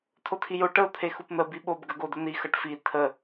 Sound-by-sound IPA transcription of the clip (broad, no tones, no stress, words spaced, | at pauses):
tʰotʰijo ʈəʊ̯ t̪ʰexupn̪ə biɓob ɡəɡodən̪i xʌʈfi tʰə